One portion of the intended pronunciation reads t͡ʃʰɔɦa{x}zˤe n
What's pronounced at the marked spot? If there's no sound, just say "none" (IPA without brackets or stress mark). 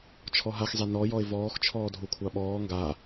x